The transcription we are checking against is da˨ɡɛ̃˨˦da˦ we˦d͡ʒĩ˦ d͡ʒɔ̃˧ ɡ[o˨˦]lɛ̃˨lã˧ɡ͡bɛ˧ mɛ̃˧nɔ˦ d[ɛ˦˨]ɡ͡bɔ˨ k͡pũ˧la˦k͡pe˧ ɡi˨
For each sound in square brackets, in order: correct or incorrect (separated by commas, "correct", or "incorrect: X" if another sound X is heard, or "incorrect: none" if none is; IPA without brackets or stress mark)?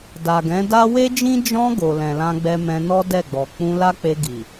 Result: incorrect: o˨, correct